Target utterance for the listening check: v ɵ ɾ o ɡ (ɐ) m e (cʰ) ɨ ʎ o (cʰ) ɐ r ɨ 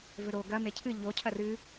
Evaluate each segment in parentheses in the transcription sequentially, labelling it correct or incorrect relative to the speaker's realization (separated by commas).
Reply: correct, correct, correct